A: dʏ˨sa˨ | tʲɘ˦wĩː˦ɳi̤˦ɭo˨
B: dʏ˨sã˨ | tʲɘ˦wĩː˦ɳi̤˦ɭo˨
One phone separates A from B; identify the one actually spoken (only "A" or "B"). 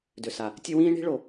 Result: A